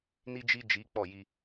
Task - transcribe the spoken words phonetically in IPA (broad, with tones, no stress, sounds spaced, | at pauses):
n i˦ d͡ʒ i˦ d͡ʒ i˨˦ k͡p ɔ˦˨ j i˦